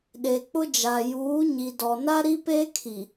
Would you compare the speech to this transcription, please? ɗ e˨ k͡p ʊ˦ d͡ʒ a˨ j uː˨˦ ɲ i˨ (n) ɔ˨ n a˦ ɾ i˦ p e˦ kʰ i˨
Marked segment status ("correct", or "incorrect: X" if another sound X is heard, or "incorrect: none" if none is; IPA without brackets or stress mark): incorrect: d